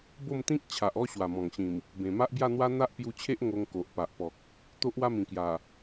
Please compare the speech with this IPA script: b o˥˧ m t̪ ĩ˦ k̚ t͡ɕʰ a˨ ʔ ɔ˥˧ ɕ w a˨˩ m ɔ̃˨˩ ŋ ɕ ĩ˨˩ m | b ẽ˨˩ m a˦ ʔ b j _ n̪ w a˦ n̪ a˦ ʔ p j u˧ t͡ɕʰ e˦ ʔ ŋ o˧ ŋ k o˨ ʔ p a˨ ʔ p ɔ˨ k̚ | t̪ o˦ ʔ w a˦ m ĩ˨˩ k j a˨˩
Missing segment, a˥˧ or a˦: a˥˧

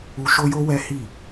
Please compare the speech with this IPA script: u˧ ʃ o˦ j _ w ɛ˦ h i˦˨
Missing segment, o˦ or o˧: o˦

